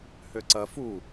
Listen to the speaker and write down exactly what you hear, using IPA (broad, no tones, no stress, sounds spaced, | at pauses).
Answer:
h ø ǀ ɐ f u